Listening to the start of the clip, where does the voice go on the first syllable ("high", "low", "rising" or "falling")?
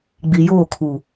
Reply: low